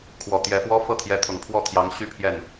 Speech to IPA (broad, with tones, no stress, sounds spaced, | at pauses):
kʰ w ɔ˨˩ t̪ j ɛ˧˥ f w ɔ˥ f ɤ˥˩ t̪ʰ j ɛ˧˥ t̪ʰ ʊ˨˩ ŋ pʰ w ɔ˥˩ t̪ʰ j ɑ˧˥ ŋ ɕ y˥ pʰ j ɛ˥˩ n